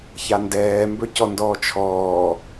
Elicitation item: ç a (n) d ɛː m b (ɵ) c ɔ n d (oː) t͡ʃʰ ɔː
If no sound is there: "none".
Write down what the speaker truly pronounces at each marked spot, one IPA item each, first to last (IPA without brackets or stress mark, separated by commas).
n, ɵ, ɔː